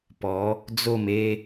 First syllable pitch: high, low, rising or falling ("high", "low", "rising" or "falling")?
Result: rising